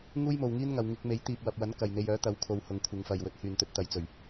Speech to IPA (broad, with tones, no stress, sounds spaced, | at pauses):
ŋ uː˥ j m o˨ w ŋ iː˥ n ŋ ɐ˨ w ŋ ɪ˧ k̚ m e˨˥ j t̪ iː˨ p̚ w ɐ˨ p̚ w ɐ˨˥ n k ɐ˨ j n̪ e˧ j œː˨˥ t̪ ɐ˨˥ w kʰ o˨ w h ʊ˨˧ ŋ kʷʰ ɪ˨˧ ŋ f ɐ˨ j w ɵ˨˥ t̚ h yː˨ n t̪ ɵ˧ t̚ t̪ ɐ˨˧ j t͡s ɵ˨˩ ɥ